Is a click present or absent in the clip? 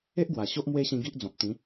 absent